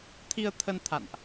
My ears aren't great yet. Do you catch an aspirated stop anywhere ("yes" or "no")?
yes